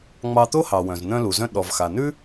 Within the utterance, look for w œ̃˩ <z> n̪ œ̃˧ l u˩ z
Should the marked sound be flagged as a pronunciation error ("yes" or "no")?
no